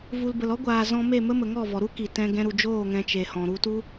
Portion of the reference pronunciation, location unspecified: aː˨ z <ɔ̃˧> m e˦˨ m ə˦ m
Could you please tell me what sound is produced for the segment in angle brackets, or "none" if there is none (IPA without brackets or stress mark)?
ɔ̃˧